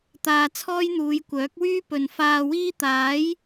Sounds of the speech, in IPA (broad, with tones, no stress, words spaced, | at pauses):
t̪aː˧ t͡sʰɔː˥jn̪uː˨˧j kʷœː˨˥k̚wyː˥ pɵ˨n faː˧wiː˥ t̪aː˨˥j